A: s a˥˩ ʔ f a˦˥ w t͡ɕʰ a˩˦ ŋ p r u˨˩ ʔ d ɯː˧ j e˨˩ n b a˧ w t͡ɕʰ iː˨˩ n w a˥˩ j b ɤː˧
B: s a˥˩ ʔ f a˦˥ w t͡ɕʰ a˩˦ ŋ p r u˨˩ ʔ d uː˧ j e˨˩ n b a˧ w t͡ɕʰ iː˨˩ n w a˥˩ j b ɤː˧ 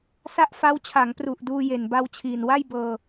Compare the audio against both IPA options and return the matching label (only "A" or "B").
B